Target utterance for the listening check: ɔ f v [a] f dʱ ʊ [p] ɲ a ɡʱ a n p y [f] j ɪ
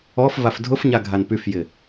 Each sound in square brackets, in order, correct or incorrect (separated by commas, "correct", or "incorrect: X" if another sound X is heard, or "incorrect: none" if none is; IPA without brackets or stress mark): correct, incorrect: f, correct